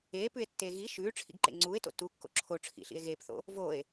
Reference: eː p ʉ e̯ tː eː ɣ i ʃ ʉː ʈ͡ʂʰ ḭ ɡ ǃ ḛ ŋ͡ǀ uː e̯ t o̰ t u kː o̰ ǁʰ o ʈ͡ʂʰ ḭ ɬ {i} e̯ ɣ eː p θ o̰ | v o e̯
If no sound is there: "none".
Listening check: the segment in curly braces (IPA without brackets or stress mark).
ḭ